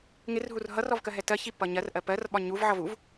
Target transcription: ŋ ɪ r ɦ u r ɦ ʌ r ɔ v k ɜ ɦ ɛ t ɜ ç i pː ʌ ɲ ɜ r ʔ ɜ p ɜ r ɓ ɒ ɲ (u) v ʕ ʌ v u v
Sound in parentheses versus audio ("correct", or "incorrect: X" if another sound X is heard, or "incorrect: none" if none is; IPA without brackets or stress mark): correct